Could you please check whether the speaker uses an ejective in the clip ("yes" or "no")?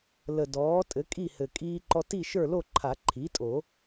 yes